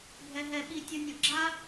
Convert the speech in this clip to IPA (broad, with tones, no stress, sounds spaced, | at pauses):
bʱ ɛ˧ ɦ ɛ˧ ɓ i˧ tʲ ɤ˧ nʲ ɤ˩ ɡ͡ǁ a˥